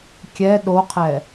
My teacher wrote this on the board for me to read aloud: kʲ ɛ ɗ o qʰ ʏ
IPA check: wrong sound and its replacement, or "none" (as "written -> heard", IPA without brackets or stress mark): ʏ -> ɛ